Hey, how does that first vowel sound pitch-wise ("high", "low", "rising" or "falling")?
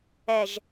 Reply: low